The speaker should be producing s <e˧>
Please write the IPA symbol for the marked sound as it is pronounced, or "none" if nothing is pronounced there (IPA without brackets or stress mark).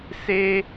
e˧